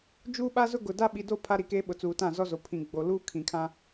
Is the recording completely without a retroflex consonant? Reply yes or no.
yes